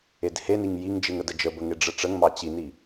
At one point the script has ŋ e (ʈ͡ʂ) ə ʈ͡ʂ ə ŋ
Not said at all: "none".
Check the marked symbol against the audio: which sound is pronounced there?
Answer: ɖ͡ʐ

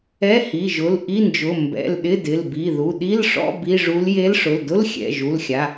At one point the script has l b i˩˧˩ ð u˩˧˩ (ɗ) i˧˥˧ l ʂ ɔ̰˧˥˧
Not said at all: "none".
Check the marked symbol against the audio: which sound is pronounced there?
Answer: ɗ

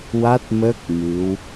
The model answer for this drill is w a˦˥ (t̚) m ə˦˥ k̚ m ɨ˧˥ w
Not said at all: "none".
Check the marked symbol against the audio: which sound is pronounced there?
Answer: t̚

